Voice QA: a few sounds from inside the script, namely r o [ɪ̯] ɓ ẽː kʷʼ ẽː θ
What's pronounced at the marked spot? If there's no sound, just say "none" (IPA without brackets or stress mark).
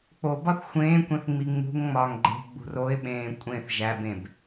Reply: ɪ̯